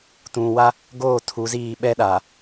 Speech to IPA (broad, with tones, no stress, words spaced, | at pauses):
tũ˨wa˦ | ɡoː˦˨tʰu˨˦ziː˦˨ ɓɛ˦ɗaː˨